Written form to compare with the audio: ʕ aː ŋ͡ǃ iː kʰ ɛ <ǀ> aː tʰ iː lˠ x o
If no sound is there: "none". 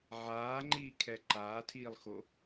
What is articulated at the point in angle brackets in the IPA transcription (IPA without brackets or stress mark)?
ǃ